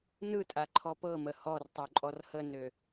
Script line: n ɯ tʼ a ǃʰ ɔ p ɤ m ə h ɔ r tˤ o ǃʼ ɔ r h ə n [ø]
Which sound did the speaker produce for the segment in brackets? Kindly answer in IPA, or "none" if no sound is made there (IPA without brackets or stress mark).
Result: ø